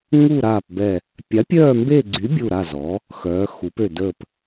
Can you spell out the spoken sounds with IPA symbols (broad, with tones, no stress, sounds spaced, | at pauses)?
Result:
ŋ u˦˨ ɾ aː˦˨ p b ɛ˦˨ | pʲ a˨˥ pʲ œː˦˨ m b e˦˨ ɡ͡ǀ y˨˥ bʲ u˦˨ ɾ a˦˨ z ɔ˨˥ | x œː˨˥ x u˨˥ p ø˦˨ d ə˦˨ p